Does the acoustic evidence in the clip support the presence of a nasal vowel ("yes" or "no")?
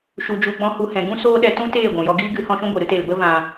yes